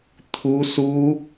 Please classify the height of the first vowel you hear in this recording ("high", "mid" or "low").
high